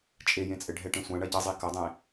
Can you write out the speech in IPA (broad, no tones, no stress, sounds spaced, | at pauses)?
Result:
t͡ʃʼ e j ẽ t͡sʼ ɘ ɖʱ ɛ ʈ ẽ sʷ ã ɳ ɐ ɟ ɐ zˤ i k ɐ dˤ ẽ